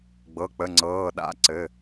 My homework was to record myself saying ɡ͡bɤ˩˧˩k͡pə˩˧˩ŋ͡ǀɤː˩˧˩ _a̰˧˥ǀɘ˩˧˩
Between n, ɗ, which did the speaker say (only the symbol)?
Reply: ɗ